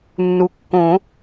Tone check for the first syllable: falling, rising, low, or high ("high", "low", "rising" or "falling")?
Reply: low